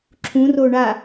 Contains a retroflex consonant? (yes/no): yes